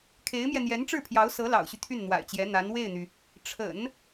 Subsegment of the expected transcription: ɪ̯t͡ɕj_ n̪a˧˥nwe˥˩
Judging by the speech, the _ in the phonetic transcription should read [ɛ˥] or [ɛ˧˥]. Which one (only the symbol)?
ɛ˧˥